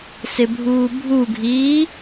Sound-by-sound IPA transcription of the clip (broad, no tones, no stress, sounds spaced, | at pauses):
s ɪ bʱ uː bʱ u ɡʱ iː